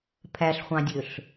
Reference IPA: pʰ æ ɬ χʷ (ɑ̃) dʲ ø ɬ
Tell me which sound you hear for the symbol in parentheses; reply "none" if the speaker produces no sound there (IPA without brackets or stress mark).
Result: ɑ̃